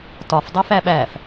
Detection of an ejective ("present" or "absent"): absent